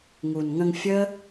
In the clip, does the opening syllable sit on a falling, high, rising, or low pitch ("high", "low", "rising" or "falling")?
low